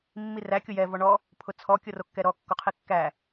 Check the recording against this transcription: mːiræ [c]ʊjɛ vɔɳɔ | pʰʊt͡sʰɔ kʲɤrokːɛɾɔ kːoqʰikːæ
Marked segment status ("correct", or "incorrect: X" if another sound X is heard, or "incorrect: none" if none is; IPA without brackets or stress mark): incorrect: kʲ